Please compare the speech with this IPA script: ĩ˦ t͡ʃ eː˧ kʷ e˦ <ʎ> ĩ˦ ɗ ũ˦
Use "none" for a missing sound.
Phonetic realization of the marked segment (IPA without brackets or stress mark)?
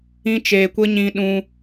ɲ